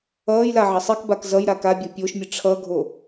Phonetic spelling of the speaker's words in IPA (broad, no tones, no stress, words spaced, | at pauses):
ʌːjla ʕʌsˤikbak zʌj ɾakabʲo pʲoʃmʲɯ ʈ͡ʂʰʌɡʱo